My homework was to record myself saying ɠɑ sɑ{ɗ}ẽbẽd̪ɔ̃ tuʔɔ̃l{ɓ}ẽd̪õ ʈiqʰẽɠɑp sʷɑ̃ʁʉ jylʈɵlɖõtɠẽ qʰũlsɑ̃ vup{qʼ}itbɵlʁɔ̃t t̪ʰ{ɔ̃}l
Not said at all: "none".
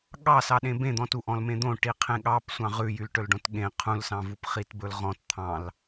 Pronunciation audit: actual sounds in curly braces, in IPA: ɗ, m, χ, ɑ̃

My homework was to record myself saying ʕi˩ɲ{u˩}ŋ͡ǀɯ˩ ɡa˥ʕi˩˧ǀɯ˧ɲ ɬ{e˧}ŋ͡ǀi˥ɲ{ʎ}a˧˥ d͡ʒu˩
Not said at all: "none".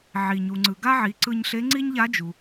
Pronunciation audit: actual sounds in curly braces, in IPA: u˩, e˧˥, ʎ

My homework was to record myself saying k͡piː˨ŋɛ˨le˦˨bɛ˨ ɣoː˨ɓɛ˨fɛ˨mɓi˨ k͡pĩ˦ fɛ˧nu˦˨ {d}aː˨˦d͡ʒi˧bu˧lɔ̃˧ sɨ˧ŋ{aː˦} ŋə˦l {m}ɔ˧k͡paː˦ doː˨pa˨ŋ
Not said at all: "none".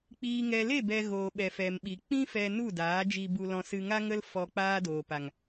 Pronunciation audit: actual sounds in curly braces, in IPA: d, a˦, f

